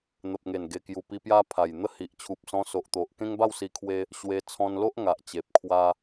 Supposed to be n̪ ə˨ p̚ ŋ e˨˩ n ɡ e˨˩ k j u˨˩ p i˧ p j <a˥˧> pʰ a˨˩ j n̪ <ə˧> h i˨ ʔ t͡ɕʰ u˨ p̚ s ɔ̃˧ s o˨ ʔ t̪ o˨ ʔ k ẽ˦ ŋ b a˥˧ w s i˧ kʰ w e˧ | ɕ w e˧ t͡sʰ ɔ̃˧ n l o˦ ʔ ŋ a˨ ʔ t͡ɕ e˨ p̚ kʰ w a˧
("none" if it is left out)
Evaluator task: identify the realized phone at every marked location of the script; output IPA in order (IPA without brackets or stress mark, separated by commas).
a˦, ə˥˧